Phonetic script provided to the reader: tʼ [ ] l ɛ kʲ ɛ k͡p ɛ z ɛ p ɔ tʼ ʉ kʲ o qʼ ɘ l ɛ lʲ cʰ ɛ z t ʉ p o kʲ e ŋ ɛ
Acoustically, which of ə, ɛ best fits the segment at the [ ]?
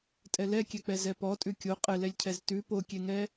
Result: ɛ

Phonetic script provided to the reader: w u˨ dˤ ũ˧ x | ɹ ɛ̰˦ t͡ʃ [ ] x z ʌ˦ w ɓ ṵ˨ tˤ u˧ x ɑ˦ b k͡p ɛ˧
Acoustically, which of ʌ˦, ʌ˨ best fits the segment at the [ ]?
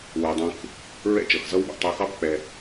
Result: ʌ˨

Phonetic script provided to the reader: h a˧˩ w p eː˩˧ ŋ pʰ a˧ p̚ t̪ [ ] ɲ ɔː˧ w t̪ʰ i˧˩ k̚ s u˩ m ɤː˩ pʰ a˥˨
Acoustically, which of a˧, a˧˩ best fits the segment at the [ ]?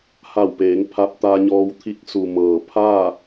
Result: a˧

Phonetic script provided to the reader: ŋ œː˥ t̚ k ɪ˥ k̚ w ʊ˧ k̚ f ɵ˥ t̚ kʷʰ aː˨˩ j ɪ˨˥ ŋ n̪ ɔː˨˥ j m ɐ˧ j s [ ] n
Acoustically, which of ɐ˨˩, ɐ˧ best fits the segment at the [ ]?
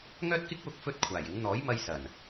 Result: ɐ˨˩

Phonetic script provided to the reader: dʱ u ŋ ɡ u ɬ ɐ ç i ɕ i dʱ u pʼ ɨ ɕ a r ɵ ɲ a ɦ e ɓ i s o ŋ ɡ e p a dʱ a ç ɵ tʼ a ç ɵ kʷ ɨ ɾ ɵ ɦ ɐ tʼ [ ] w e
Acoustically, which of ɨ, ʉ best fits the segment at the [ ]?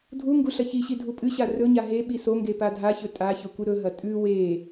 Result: ʉ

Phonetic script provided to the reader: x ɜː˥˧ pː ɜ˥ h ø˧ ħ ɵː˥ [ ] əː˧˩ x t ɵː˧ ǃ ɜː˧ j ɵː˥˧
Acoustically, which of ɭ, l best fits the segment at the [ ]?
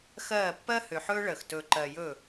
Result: ɭ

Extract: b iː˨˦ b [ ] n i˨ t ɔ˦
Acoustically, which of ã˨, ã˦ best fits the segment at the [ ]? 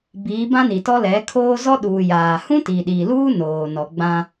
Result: ã˦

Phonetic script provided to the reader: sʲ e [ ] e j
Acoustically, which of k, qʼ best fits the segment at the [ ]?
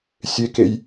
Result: k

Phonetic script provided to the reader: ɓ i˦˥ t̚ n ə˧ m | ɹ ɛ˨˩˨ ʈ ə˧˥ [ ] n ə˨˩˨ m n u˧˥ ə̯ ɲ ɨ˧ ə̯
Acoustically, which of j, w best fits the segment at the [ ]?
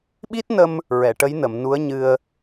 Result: j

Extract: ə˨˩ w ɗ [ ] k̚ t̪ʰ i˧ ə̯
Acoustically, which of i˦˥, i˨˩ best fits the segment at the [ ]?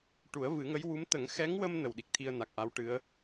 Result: i˨˩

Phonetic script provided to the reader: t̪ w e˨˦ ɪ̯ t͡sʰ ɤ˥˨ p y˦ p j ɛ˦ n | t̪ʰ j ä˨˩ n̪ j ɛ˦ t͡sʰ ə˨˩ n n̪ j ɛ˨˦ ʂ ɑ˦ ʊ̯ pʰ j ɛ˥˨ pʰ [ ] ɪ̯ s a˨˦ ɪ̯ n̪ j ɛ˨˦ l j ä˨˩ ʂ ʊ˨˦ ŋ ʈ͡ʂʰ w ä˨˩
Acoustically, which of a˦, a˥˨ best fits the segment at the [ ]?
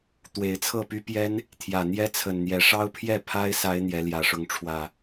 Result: a˦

